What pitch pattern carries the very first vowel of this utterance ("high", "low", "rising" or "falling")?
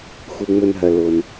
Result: low